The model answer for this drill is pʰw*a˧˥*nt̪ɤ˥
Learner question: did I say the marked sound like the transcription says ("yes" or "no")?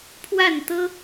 no